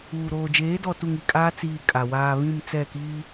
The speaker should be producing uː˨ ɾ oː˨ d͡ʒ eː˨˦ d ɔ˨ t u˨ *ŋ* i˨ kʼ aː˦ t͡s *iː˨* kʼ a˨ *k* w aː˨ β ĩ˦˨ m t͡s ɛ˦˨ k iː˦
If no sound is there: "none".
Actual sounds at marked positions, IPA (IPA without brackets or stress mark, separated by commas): ŋ, iː˨, none